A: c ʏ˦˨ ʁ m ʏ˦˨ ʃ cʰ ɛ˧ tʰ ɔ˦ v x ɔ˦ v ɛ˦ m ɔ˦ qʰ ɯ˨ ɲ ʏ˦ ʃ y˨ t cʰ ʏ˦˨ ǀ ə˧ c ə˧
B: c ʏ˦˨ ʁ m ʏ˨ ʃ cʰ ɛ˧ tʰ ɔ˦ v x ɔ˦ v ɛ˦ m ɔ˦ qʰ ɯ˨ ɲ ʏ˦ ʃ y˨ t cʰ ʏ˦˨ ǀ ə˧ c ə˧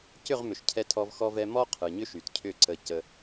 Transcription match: B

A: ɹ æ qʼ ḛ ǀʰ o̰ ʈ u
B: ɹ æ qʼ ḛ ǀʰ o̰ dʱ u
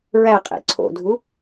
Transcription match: B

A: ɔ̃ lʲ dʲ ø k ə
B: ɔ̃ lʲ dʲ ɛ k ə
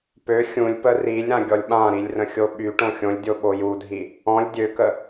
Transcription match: A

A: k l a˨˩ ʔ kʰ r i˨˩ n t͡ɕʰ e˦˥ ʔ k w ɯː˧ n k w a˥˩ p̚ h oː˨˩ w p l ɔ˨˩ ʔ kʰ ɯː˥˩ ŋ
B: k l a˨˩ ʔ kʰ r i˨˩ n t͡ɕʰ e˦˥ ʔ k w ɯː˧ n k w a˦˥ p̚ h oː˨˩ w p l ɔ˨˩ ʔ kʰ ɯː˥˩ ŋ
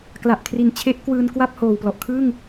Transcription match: A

